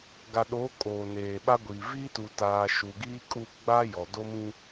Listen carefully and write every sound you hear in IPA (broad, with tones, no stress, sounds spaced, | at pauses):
ɡ a˨ ɗ oː˨˦ kʼ oː˨ n eː˨ ɓ a˦ ɡʷ iː˨ v iː˦ t u˨ t aː˨ ʃ u˨ ɡ iː˦ kʼ u˦˨ ɡ͡b a˦ j ɔ˨ d o˦ m ĩ˦